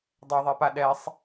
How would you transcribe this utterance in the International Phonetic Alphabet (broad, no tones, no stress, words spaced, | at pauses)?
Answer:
dˤɛðˤɛpa ɗɛsˤ